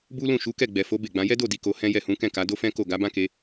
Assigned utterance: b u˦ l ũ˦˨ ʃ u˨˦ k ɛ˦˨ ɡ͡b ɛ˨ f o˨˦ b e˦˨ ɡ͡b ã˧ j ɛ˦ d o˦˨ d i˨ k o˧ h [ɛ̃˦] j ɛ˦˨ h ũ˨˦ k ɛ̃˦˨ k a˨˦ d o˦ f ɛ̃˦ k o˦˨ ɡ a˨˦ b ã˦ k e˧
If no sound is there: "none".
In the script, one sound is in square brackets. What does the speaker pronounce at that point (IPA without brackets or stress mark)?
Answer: ɛ̃˦